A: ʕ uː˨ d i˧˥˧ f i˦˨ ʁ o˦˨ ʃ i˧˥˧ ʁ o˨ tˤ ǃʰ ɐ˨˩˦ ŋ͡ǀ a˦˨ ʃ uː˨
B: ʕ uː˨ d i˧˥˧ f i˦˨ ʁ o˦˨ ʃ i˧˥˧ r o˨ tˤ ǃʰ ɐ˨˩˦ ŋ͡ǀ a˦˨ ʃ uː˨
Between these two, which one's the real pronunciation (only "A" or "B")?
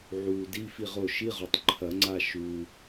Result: A